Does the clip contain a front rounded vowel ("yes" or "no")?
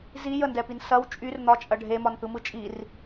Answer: yes